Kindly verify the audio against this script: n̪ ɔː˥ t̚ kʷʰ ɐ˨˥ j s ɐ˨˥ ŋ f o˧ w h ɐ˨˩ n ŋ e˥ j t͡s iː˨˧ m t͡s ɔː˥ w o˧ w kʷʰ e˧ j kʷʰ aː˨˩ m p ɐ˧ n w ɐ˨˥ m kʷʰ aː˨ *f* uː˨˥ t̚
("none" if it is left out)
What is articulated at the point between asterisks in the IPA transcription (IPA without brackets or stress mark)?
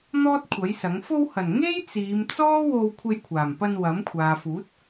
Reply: f